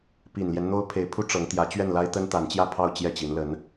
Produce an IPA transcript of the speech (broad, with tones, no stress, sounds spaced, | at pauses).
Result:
p i˨˩ n l j ɛ˦ n n̪ o˥ ʊ̯ pʰ e˧˥ ɪ̯ pʰ u˥ ʈ͡ʂ ɤ˧˥ ŋ t̪ j ä˧˥ t͡ɕ ɥ ɛ˥˩ n l a˥ ɪ̯ t̪ ə˥ n t̪ a˧˥ n t͡ɕ j ä˥˧ pʰ ɑ˥˧ ʊ̯ t͡ɕ j ɛ˥˩ t͡ɕ i˧˥ n l ə˧˥ n